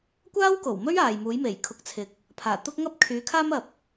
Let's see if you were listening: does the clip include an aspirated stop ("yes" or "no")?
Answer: yes